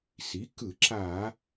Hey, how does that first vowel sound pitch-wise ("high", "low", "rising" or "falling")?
rising